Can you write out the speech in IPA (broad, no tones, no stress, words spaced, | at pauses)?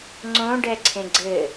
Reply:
ŋ͡ǀõ ɖɛǀʰẽɡ͡ǀɘ